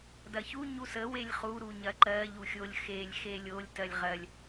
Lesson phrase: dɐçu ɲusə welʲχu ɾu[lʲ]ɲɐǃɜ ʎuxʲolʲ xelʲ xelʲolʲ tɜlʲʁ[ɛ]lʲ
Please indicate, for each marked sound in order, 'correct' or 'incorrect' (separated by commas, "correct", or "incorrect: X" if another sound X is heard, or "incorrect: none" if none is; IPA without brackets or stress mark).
incorrect: none, incorrect: ɜ